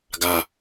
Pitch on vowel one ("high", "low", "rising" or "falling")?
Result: low